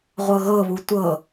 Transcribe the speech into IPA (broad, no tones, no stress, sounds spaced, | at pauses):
ʁʷ ɤ ɣ ɤ β u tʷ ɤ